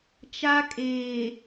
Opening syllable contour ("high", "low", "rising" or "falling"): high